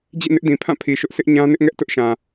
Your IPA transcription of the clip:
d͡ʑ ḭ˦˨ n ɪ˦ ʔ d ĩ˨ pʰ ã˦˨ pʰ i˨ ʃ ʊ˦ ʔ sʰ ɪ˦ ʔ ɲ ã˦ n ɪ˦ ʔ ŋ ɛ˦ ʔ t ʊ˦ ʔ ʃ ã˨

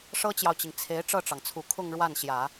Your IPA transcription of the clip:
ʂ ɤ˥ t͡ɕ j ɑ˨ ʊ̯ t͡ɕ i˩ ŋ t͡sʰ e˧˥ ɪ̯ ʈ͡ʂ ɤ˥˩ ʈ͡ʂ ɑ˩ ŋ t͡sʰ u˨˩ kʰ ʊ˥˧ ŋ ɻ w a˥˩ n ɕ j ä˨˩˦

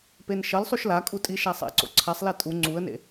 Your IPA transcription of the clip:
p e n ʃ ʌ l sˤ u ʃ l a kʼ u tʼ i ʃ a sˤ ɛ̰ ǀ o̰ ǀʰ a sˤ l ɛ tʼ u ŋ͡ǀ u ə̯ n ḛ

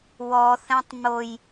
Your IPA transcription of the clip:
w ɔ θ ɛ̃ tˤ m o j

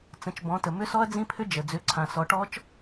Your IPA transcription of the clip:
t͡s ə̃˩˧ t͡ʃ b ɔ̃˩˧ t ə˩ m ʏ˦˥ s ɔ˦˥ ɐ̯ d͡z ĩ˦˥ pʰ ʏ˦˥ d͡ʒ ə˩ d͡z ʏ˩˧ ǀʰ ã˩ s ɔ˩˧ ʈ ɔ˦˥ t͡ʃ

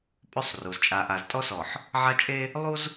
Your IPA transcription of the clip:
pʼ ɵ˦ sˤ r u˨ z t͡ʃʼ a˨ ʔ a˨ z tʼ ɔ˦ s ɔ˨ ħ | ʕ a˦ t͡ʃʼ e˦ | lˠ u˦ z

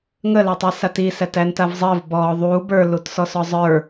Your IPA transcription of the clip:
ŋ ə l æ tˤ i s a t i s æ t æ n t a v zˤ əː v b ɔː ðˤ uː b ə˞ l u t s ɔ s ɔ zˤ ə˞

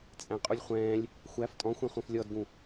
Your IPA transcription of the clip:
t͡sʼ æ̃ qʼ u lʲ χʷ ɛ̃ː lʲ | xʷ æ f tʼ ɔ̃ xʷ ɛ̃ χʷ œ̃ f lʲ ɔ d ɡ ũ

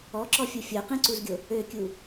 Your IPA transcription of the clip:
ɔ ǁ ɔ fʲ o fʲ o q ẽ ǀ u z ɡʲ o | ø kʲ u

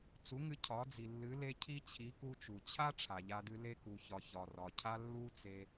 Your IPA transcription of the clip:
t͡s u˨˦ ŋ ɨ˧ cʰ ɒ˨˦ d͡z i˨ lː ɨ˨˦ l e˦ cʰ i˦ t͡ɕʰ i˨˦ k u˧ t͡ʃ u˨ t͡ɕʰ a˦ ʈ͡ʂʰ a˨ ʎ a˧ d ɨ˧ l e˧ k u˨ ç ɒ˨ ç ɒ˨ r ɒ˨ cʰ a˦ lː u˦ t͡s e˧

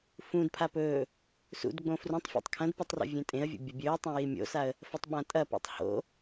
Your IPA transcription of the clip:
f ũ d pʰ a p ɵː | s ṵ d ɡ͡b õ f r ũ tˤ fʲ ḛ tˤ kʰ ɐ̃ d p ɵ tˤ r o̰ vʲ ẽ tʼ ẽ ə̯ vʲ ṵ bʲ ɐ bʲ ɵː tˤ ã j i mʲ o̰ s a ə̯ | f ɐ tˤ ɓ ã tʼ ɐ p ṵ tˤ h o̰

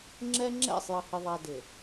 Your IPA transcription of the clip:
ŋ͡ǁ ɛ˦ ŋ͡ǁ ɛ̰˦˨ sˤ j ʌ˨ h ɪ˨ ðˤ æ˨ d ɪ˨

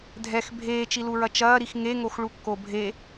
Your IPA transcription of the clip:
dʱ ɛ x bʱ eː t͡ʃ i l u ɹ ɐ t͡ʃ ɐː ɾ i x ŋ e ŋ o x ɭ u kː o bʱ e

